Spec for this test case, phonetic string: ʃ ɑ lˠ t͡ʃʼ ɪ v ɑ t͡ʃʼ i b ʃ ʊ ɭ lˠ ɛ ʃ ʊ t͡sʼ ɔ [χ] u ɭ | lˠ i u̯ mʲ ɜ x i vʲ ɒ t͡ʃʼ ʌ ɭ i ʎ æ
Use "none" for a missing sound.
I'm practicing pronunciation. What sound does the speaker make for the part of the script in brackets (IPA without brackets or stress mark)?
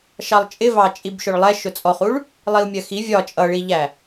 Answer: χ